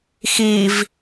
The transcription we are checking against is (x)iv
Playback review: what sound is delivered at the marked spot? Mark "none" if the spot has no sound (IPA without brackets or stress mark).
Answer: x